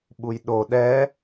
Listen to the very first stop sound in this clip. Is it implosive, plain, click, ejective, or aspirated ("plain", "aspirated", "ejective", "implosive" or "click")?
implosive